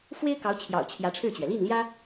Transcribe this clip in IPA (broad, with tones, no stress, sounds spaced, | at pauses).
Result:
f w e˥ ɪ̯ k ɑ˧˥ ʊ̯ t͡ɕʰ j ɑ̰˨˩ ʊ̯ t͡ɕʰ j ä˧˥ ʈ͡ʂʰ ɻ̩˥˩ t͡ɕ ɥ ɛ˩ l i˥˩ n l j ä˥